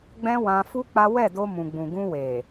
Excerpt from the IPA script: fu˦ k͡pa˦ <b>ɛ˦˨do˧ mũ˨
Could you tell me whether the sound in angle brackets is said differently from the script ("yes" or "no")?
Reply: yes